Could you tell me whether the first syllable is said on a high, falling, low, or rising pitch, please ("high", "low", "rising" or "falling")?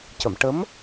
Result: low